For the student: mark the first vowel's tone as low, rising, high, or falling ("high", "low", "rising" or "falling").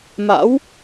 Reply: rising